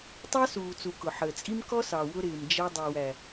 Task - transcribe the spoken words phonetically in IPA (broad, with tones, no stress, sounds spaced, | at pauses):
tˤ ɑ˦ s uː˨ t͡s u˨ k ʊ˨ ħ əː˨ t͡sʼ i˦ m k ɔ˦ s ɑ˨ w ʊ˧ ɾ ɪː˨ m d͡ʒ ɛ˧ dˤ u˨ w æ˨